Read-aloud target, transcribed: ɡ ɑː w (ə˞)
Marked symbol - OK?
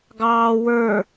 yes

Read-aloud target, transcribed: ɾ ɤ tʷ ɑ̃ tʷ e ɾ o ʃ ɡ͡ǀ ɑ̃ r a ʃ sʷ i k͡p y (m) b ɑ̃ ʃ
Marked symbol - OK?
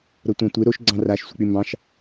yes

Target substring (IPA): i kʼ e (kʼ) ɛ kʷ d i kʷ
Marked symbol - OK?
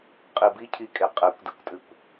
no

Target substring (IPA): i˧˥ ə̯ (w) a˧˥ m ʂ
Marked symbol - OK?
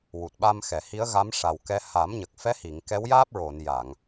no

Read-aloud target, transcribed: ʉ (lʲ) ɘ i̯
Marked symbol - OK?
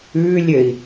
yes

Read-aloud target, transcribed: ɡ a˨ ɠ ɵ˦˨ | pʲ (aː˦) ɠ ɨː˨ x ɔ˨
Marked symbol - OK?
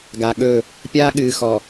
yes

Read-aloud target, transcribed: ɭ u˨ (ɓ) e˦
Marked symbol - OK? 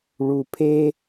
no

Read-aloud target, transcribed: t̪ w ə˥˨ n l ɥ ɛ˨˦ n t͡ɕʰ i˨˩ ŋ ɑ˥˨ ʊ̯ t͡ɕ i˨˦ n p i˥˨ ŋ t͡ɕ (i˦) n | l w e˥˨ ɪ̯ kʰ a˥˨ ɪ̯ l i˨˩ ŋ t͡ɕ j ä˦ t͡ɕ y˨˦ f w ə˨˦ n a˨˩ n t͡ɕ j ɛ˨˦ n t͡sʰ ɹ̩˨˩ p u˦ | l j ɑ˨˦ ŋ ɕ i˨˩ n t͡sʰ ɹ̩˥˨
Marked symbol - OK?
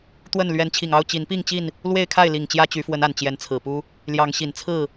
no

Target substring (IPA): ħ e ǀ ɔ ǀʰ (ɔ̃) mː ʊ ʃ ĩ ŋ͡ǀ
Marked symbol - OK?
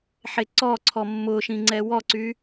no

